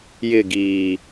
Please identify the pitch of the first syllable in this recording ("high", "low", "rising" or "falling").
falling